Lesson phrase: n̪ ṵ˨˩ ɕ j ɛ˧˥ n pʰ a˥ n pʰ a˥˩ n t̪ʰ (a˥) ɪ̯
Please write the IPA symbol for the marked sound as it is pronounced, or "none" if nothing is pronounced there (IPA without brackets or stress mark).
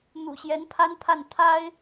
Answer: a˥